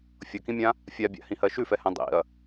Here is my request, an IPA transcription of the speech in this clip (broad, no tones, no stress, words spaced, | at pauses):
fʲʌkĩmʲã | fʲabʲa̰hĩhɜ ʃʉfɛhɛ̃ dˤḭɐ̯